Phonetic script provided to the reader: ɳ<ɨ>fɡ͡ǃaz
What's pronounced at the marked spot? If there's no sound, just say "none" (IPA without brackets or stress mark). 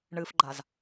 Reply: ɨ